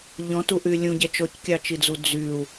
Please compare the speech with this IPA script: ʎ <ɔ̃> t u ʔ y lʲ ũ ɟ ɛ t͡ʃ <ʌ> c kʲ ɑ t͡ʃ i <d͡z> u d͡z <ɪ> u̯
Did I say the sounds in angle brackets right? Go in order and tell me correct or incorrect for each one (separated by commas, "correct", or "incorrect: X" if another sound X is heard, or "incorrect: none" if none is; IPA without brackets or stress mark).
correct, incorrect: ɔ, correct, incorrect: y